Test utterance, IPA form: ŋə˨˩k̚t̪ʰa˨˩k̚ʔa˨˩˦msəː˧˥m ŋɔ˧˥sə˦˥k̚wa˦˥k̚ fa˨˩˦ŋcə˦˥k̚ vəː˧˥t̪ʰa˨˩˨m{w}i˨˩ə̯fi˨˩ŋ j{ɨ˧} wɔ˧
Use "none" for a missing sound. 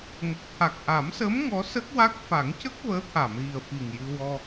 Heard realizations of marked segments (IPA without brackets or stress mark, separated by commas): ɣ, ɨ˧